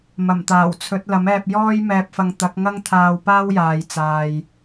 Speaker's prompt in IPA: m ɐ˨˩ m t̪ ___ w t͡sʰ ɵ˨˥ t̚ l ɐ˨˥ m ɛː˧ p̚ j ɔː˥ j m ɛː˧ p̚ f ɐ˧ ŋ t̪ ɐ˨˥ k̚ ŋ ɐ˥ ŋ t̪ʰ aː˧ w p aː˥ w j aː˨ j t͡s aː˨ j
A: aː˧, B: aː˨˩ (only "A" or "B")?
B